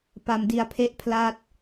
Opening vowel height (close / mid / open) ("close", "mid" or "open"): open